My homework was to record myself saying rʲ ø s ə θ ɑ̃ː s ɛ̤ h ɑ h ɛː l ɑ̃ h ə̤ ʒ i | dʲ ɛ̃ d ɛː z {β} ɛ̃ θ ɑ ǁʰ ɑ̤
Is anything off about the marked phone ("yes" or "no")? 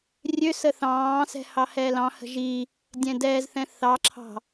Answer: yes